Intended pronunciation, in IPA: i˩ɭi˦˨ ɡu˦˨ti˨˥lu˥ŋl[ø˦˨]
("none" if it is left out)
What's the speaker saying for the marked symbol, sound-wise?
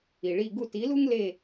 e˦˨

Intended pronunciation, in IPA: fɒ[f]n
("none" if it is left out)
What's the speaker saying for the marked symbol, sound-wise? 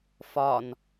none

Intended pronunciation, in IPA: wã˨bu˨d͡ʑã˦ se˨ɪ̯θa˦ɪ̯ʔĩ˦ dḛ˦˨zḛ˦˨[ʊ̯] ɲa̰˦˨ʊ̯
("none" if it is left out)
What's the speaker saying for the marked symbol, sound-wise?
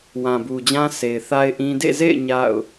ɪ̯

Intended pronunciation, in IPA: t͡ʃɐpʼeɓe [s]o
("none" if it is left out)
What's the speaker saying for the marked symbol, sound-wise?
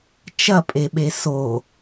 s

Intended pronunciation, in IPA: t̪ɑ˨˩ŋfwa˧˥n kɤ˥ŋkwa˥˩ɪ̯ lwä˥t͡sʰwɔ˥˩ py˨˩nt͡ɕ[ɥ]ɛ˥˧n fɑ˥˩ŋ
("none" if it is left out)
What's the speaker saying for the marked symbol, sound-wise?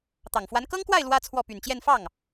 j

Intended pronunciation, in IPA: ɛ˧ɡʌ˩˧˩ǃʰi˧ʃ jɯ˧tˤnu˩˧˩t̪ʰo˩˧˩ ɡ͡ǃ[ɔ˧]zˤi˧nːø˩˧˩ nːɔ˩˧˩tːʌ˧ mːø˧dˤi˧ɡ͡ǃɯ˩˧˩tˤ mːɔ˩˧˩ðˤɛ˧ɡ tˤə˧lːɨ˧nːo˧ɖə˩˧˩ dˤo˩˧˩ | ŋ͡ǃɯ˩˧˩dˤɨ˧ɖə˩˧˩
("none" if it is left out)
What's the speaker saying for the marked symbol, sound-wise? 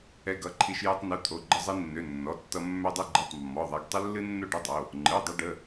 ə˧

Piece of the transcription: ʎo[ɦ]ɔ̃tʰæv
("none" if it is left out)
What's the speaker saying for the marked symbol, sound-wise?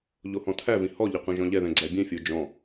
h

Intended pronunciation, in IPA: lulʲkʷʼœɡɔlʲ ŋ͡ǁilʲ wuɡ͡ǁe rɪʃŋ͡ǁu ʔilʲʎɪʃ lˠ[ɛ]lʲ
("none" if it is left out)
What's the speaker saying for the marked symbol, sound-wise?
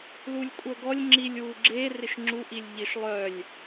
œ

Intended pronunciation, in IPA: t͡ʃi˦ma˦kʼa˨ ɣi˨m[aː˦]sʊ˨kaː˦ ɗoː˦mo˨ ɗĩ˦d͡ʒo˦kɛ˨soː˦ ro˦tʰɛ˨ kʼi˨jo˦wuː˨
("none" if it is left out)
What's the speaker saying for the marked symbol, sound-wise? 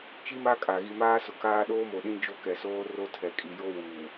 aː˦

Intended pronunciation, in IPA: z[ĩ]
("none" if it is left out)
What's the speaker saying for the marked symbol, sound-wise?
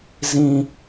ĩ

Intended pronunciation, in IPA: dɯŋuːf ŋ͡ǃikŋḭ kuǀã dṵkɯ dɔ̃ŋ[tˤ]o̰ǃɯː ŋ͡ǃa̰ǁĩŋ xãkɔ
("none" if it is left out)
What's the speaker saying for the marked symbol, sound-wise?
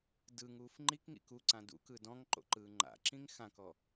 ǃ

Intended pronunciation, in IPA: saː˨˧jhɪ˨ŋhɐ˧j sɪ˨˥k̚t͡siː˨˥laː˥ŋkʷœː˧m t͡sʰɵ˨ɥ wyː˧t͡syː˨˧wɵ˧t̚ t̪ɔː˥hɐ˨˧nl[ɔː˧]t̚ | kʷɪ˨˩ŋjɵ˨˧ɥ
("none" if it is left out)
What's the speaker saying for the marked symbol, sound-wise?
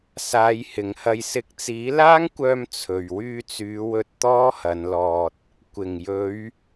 ɔː˧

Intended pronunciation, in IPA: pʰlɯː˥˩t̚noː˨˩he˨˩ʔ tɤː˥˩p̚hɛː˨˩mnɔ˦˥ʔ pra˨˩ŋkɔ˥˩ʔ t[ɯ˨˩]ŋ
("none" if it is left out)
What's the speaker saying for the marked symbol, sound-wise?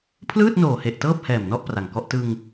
ɯ˧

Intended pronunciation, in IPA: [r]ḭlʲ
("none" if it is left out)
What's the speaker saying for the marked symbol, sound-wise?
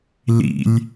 l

